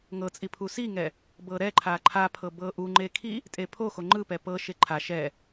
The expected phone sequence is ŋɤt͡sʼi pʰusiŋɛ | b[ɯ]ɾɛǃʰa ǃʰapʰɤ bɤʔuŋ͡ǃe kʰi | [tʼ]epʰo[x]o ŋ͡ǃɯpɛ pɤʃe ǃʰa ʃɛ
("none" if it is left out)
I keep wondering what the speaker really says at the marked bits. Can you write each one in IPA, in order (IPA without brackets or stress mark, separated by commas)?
ɤ, tʼ, x